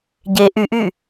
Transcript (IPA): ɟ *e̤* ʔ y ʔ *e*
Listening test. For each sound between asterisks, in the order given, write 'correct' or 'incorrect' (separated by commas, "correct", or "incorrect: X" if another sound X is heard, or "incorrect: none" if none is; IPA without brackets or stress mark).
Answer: incorrect: e, incorrect: y